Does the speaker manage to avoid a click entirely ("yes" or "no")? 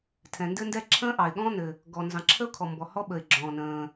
no